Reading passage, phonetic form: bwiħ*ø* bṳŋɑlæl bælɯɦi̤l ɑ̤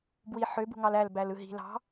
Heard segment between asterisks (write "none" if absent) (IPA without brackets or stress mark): ø